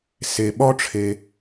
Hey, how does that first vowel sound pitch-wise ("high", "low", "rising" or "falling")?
low